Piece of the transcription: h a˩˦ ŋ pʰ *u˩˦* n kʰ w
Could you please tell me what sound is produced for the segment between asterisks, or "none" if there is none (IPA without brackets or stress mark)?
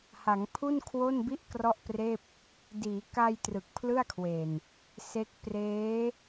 u˥˩